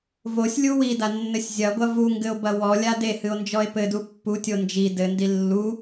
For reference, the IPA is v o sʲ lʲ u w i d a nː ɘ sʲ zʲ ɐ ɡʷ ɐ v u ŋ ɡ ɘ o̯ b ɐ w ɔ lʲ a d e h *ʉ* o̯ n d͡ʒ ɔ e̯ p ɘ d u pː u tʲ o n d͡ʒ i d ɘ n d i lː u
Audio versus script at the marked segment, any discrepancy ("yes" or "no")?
yes